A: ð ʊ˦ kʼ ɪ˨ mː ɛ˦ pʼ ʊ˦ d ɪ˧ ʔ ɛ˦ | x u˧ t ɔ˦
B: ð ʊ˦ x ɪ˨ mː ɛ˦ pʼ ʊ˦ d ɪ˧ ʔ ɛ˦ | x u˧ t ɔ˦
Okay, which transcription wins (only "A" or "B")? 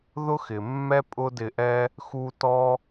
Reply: B